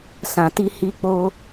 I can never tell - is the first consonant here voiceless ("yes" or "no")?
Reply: yes